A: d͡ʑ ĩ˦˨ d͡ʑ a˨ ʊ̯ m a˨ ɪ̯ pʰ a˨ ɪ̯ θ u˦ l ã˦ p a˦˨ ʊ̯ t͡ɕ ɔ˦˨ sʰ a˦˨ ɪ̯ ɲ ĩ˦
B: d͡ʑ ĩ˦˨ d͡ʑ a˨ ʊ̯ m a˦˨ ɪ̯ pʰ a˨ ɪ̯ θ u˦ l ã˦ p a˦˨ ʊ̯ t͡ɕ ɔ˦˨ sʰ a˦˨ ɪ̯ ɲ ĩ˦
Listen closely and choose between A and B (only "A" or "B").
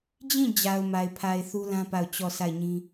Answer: A